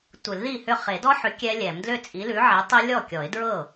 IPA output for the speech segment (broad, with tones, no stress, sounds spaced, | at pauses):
tʷ ɨ˨˩˦ l ð i˥˩ h ʏ˥˩ χ e˨˩˦ d ɔ˦˥ ħ ʏ˨˥ kʲ ɛ˦˥ lʲ ɛ˨˩˦ m d l ʏ˥˩ t͡sʼ i˨˥ l ʉ˨˥ ʕ e˨˥ tˤ e˦˥ lʲ ɔ˥˩ kʲ ɔ˨˩˦ ɪ̯ d ɹ ɤ˥˩